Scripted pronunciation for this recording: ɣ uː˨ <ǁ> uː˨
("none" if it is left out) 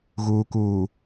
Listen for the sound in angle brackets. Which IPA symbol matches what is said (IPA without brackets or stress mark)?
k